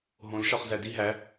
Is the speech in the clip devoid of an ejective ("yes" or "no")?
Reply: yes